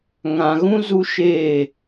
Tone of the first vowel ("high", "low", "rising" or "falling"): low